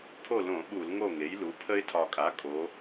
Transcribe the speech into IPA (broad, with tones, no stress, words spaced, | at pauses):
pʰo˥˨lõ˧˩˧ ɓu˧˩˧lŋo˥˨ŋe˩˥jlu˩˥ pʰə˦ɪ̯tʰɒ˨˩kʼa˩˥ kʼo˩˧